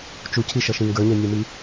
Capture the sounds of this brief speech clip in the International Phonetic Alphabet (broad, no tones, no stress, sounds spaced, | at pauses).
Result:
t͡ʃ u cʰ i ʃ ʌ ʃ ĩ ŋ ɡ ə˞ ɲ ɛ nʲ ə˞ m i